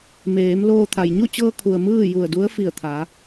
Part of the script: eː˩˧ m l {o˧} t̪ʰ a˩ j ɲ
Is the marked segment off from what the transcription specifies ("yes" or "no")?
yes